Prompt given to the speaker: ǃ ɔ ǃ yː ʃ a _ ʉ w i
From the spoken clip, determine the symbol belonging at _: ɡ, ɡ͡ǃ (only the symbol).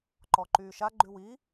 ɡ͡ǃ